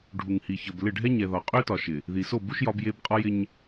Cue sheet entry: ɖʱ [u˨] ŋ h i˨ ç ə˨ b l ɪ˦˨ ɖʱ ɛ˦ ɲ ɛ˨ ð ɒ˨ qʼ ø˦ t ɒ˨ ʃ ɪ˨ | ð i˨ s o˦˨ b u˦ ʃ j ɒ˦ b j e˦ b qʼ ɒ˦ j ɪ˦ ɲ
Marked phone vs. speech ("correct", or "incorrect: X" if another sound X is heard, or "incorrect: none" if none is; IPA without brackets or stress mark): correct